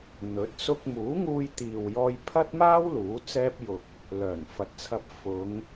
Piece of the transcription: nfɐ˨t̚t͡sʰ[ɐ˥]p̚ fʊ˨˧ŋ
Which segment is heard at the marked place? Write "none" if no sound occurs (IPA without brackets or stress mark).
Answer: ɐ˧